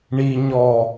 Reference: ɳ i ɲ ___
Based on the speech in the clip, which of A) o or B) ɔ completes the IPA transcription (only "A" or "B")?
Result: B